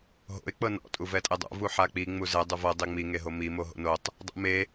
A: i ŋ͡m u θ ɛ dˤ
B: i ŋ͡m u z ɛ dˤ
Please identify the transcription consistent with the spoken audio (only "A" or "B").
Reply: B